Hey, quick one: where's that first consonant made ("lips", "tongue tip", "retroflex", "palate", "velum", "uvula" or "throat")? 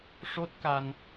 retroflex